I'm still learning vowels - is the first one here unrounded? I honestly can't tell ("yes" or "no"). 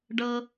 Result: yes